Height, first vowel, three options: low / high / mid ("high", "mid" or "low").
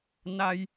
low